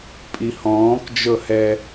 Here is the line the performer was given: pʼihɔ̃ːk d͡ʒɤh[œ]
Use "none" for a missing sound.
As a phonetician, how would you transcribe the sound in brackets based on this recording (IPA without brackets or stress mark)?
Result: ɛ